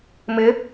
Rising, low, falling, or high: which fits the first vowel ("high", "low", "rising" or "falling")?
rising